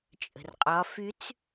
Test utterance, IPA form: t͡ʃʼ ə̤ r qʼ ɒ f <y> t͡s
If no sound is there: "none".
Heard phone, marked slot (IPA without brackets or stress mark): y